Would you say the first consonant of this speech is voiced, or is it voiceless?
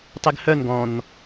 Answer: voiceless